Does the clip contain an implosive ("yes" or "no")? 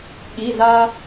yes